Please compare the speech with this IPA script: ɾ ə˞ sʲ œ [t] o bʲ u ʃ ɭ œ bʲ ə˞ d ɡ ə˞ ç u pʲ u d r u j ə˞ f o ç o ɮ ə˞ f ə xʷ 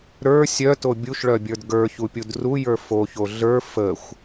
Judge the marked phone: correct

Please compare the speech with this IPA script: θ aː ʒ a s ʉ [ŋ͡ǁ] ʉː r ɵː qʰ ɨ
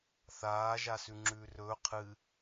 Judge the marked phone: correct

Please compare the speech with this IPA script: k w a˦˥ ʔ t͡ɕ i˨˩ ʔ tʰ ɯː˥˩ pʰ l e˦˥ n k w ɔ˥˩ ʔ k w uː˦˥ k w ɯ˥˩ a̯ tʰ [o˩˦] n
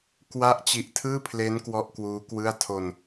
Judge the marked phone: incorrect: o˧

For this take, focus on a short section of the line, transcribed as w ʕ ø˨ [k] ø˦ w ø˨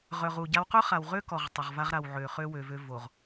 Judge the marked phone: incorrect: χ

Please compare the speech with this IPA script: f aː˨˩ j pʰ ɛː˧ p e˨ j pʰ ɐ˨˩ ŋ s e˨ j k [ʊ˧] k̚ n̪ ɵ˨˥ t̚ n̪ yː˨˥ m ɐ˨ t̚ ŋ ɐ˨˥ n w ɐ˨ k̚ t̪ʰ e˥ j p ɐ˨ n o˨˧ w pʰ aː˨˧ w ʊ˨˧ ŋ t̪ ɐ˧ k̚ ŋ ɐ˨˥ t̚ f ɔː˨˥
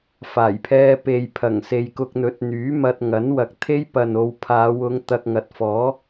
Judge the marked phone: correct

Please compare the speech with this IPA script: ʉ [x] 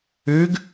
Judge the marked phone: incorrect: ɡ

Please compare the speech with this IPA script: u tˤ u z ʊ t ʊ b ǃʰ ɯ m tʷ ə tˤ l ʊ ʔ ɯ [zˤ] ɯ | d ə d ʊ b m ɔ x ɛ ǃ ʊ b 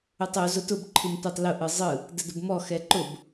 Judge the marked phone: correct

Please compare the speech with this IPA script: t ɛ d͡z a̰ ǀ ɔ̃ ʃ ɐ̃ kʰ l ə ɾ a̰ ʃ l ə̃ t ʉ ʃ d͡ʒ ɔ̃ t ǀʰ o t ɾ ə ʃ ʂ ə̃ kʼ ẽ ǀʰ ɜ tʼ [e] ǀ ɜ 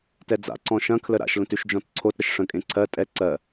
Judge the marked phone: incorrect: ɛ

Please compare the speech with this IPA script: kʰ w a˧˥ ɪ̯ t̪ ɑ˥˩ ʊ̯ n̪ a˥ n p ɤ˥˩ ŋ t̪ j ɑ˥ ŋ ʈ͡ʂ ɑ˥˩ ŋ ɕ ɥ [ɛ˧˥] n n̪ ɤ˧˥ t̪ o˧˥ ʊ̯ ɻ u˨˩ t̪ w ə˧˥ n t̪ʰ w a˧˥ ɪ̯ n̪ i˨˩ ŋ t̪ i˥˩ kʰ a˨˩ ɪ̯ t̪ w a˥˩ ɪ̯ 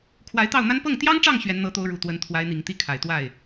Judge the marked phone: correct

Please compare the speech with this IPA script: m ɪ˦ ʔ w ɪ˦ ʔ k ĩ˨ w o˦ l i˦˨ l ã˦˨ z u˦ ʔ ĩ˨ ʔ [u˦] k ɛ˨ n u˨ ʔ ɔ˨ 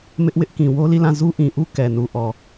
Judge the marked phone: correct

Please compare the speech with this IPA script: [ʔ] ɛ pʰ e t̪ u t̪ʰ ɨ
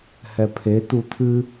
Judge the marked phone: incorrect: h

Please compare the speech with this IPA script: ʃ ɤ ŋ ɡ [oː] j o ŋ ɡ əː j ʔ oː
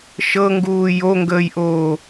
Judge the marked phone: incorrect: uː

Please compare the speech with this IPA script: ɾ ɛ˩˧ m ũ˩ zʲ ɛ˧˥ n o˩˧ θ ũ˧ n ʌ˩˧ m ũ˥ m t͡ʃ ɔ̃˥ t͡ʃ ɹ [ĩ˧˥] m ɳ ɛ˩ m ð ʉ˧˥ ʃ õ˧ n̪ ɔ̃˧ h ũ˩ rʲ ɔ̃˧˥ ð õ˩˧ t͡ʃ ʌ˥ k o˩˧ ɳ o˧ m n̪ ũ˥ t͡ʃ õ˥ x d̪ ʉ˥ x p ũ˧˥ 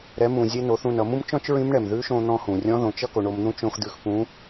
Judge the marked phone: correct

